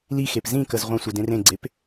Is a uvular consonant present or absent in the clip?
present